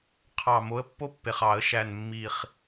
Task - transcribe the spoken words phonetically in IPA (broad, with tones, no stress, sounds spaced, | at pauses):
qʰ ɑ˨˩ m o˨˦ ə̯ pː o˦ pː e˨˩ χ ɑ˧˩˧ ə̯ ʃ æ˨˩ n mː i˨˩ χ